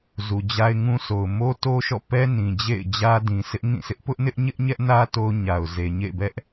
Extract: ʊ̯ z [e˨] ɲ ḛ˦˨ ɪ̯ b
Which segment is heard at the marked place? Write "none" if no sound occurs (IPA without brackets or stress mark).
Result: e˨